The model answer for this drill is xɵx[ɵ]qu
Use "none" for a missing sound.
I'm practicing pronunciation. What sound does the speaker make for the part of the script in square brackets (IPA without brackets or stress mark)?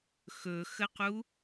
ə